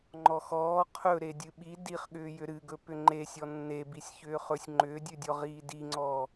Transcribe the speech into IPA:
ŋ͡ǃ ɔ x ɔː qʰ ɵ ɾ e dʲ ɨ ɓ i d i χ ɠ ʏː j ʏ ɾ ɨ ɡ ɵ p ʏ ŋ͡ǃ e sʲ ɔ nː e b i sʲ ç ʏː χ ɵ sʲ ŋ͡ǃ ʏː dʲ ʉ dʲ ɔ ʁ iː d i ŋ͡ǀ ɔː

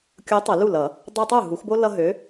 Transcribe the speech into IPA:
kʲ o˨˥ tˤ ə˨˩˦ l u˥˩ l ʌ˨˩˦ | dˤ ɛ˦ tˤ u˥˩ ɦ u˨˩˦ x b o˦ l ʌ˦ ɦ ø˨˥

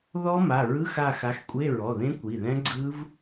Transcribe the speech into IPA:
ð ɔ˦˥ m a˩˧˩ ɹ ɯ˧˥˧ x a˦˨ x a˨˥ x kʷʼ e˧˥˧ ɹ ɔ˩˧˩ ð ẽ˦˥ kʷ i˩˧˩ ð ɛ̃˦˥ ɡ͡ǀ ɯ˦˥ v

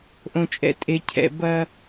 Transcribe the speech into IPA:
ʔ õ˨ t͡ʃʼ ɛ̰˨ tʼ e˨ cʰ ɛ̰˨ b ɐ˦

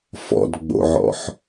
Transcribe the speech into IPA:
f ɔ̰ d ɡ͡b o̰ ʕ ɔ̰ ħ

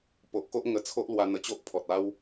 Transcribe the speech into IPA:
p o˨ ʔ k o˦ ʔ ŋ ə˧ t͡sʰ o˦ ʔ l w a˧ n̪ ə˧ t͡ɕ o˦ ʔ pʰ ɔ˨ t̚ a˦ w

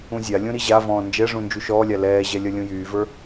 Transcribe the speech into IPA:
ũ zʲ a lʲ ũ ɾ i ʑ a v ɔ̃ː n d͡ʒ ɛ ʐ ũ n d͡ʒ u ʃ ɔː lʲ a l ɛː ʑ ɛ lʲ ʌ lʲ ũ j yː v ə˞

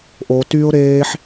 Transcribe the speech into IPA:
ʔ o t y ʊ̯ ɾ eː ħ

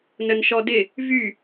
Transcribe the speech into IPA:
n ə n ʃ ɔ d ɪ | v y

